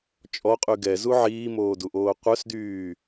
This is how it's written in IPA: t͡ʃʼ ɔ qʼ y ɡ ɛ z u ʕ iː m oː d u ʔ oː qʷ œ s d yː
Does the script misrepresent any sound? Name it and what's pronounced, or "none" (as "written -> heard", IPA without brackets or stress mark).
none